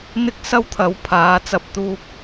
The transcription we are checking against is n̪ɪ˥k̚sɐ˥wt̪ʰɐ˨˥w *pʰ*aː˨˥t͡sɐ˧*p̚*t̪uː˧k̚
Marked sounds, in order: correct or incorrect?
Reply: correct, correct

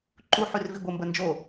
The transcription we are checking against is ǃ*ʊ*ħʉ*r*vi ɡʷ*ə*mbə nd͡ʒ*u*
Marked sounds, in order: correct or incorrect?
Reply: incorrect, correct, correct, incorrect

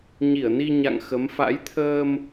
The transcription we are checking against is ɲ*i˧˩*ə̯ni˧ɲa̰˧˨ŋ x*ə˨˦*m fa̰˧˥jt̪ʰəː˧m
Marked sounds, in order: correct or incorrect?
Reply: correct, correct

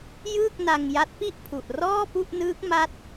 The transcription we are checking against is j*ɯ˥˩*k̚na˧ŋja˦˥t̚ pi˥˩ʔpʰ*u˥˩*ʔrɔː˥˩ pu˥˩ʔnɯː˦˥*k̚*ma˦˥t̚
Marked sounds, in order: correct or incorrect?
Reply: incorrect, incorrect, correct

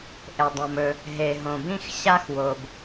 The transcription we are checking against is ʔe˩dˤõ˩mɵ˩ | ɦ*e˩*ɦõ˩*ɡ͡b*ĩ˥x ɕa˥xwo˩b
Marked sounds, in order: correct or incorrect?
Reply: correct, incorrect

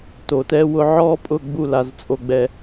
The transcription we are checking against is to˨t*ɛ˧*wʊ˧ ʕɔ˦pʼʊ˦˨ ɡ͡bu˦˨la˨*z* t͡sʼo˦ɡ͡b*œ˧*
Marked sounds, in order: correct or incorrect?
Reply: correct, correct, incorrect

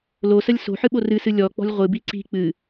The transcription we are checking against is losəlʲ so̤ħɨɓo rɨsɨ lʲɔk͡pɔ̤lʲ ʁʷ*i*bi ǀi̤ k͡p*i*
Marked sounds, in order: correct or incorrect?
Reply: incorrect, incorrect

